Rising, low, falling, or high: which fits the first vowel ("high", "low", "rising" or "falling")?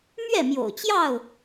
falling